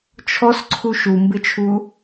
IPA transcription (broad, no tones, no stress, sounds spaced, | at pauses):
t͡ʃʰ ɔ s ǀʰ u ʃ u m b ɪ t͡ʃʰ u